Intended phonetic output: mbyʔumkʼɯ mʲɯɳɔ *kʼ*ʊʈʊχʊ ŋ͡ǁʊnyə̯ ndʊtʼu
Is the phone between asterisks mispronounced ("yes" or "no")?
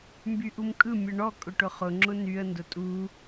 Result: no